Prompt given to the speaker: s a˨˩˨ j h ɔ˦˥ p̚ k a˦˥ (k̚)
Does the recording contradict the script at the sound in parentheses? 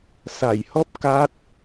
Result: yes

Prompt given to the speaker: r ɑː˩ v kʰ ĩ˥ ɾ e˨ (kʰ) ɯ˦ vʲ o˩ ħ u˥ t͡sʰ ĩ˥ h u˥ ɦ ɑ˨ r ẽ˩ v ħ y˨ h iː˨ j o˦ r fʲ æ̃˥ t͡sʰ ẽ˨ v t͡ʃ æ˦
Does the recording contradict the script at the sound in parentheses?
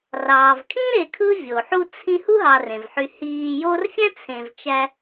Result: no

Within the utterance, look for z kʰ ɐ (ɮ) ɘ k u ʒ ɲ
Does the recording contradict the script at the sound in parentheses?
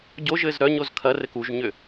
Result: yes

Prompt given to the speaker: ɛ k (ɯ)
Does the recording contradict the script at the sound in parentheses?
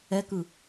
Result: no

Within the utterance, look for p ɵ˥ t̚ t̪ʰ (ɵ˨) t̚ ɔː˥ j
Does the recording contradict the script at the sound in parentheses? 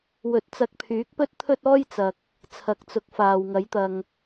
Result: yes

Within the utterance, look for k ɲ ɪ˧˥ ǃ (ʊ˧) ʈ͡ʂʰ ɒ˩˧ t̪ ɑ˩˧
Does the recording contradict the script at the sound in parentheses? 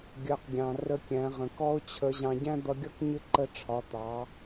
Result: yes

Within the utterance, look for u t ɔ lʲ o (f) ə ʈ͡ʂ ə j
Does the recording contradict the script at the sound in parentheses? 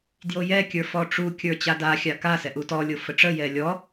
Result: no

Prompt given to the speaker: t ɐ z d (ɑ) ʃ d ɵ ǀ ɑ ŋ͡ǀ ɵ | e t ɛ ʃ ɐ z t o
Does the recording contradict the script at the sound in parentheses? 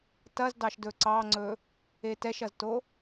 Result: no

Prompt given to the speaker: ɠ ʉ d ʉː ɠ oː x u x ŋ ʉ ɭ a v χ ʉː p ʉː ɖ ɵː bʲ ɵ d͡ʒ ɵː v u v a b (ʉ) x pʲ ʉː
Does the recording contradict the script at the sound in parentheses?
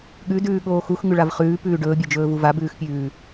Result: yes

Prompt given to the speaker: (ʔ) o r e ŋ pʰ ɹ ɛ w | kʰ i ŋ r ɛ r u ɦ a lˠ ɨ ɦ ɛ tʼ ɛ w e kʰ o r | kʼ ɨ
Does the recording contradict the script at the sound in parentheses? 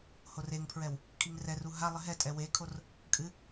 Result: yes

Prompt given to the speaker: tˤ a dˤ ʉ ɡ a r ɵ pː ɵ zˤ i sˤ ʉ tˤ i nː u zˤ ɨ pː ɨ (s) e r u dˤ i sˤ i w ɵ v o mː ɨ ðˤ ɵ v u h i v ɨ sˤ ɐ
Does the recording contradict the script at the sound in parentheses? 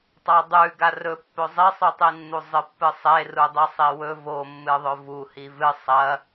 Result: yes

